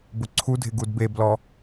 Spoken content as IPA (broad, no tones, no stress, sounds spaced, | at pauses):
b ʊ ǀʰ u dʱ ɪ ɡ u d b e b l ɔ